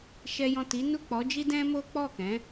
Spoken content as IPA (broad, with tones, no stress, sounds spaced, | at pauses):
ʃ ɛ˦ j ɔ̃˦˨ t i˨˦ n u˦˨ k͡p ɔ˨˦ d͡ʒ i˦ d ɛ̃˦ m o˦ k͡p ɔ˦˨ k ɛ̃˨˦